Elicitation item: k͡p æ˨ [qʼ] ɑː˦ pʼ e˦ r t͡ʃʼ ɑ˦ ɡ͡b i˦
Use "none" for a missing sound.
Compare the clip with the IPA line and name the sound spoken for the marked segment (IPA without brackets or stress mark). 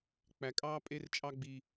kʼ